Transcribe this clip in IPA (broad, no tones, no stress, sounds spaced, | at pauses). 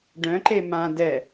ɖ œ̃ ǃ e m ã d ɛ